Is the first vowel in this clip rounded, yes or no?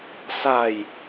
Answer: no